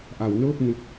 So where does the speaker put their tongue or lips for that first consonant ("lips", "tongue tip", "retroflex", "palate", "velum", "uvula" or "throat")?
throat